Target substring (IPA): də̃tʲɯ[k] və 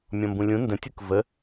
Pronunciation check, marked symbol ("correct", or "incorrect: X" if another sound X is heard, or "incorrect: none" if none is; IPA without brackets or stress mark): correct